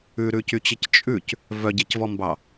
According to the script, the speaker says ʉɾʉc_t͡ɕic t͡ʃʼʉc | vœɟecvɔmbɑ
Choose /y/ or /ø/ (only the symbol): y